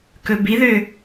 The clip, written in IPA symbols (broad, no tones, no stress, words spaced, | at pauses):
kɵbiðø